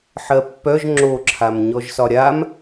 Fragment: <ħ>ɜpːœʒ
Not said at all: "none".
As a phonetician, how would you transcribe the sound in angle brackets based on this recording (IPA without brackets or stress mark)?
ħ